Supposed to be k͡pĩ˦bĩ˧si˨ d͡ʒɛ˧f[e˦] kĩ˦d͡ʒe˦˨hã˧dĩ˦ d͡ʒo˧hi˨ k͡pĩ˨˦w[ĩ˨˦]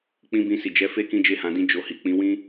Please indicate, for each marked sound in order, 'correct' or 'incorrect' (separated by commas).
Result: correct, incorrect